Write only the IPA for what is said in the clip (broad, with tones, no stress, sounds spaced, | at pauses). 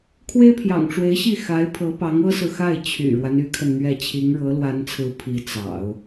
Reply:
kʰ w e˥ ɪ̯ pʰ j ɑ̰˨˩ ŋ ʈ͡ʂ w e˧˥ ɪ̯ ɕ i˥˩ x a˧˥ ɪ̯ pʰ ɤ˧˥ p ɑ˧˥ ŋ ɤ˥ s ɹ̩˨ x a˥˩ ɪ̯ t͡ɕʰ y̰˨˩ ɻ w a˦ n y˧˥ kʰ ə˧ n n̪ ɥ ɛ˥˩ t͡ɕʰ i˧˥ ŋ ɻ ɤ˧˥ l w a˧˥ n t͡sʰ ɹ̩˧˥ pʰ i˧˥ t͡s ɑ̰˨˩˦ ʊ̯